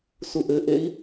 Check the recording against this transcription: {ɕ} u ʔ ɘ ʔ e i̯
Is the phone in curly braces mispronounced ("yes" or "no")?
yes